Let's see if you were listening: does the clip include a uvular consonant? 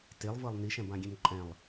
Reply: no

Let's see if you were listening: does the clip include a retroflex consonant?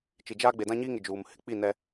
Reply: no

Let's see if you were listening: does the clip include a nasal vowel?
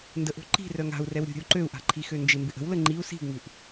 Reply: no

